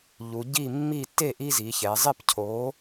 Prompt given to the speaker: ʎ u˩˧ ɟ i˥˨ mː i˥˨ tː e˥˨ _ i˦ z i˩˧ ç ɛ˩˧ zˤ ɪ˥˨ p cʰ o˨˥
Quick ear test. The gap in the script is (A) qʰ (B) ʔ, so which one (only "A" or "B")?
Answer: B